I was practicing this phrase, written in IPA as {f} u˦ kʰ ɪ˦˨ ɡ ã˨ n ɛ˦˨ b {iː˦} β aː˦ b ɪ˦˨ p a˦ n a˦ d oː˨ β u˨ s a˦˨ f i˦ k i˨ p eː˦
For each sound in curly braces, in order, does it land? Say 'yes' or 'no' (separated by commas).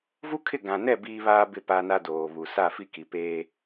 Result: no, yes